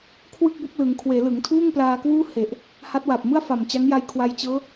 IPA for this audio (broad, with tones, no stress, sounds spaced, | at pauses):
kʰ w ɯ˥˩ k̚ b o˦˥ k̚ l ɯ˩˦ ŋ kʰ w eː˩˦ l ɯ˩˦ ŋ tʰ uː˥˩ ŋ p l aː˧ k w uː˥˩ h e˨˩ ʔ | h a˦˥ t̚ w a˨˩ p̚ m ɯ˥˩ a̯ f a˨˩ m t͡ɕ a˦˥ ŋ j a˧ j kʰ w a˧ j t͡ɕ ɤː˦˥